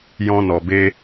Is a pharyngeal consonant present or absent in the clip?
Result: absent